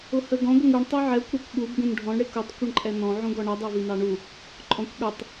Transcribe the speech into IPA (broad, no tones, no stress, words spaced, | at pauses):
ʊhəɡɔ̃ ɡʷəŋuɳ tˤuʕɛkʷ ɾukʷɠub ɡũnɖʱɔ̃ɳ ɽɪkutˤ kʷəɳǃʼɛnɔ̃ ʕũɡɔɳʌ dˤɛvinɑɳu | ǃʼɔ̃kʷɠə˞tˤ